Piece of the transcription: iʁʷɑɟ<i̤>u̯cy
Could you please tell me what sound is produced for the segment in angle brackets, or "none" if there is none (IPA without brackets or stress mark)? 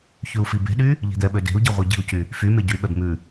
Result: i̤